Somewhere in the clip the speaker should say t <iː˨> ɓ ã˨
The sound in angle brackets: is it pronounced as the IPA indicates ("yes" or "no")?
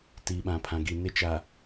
yes